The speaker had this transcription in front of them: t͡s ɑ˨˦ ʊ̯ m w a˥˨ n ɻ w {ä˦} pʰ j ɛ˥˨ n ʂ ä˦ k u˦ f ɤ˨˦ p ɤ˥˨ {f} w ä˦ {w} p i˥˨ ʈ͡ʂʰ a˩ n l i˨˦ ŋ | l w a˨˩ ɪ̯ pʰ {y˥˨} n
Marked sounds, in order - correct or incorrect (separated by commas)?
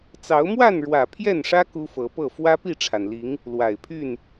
incorrect, correct, incorrect, correct